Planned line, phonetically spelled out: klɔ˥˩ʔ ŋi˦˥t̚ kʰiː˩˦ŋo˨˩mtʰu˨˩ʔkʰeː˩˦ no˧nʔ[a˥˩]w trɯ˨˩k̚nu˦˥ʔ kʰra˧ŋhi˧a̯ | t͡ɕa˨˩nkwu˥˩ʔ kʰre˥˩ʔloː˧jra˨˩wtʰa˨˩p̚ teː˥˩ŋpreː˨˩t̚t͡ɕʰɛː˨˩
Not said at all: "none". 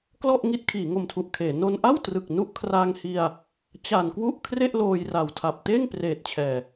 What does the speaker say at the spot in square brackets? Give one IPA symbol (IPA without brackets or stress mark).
a˥˩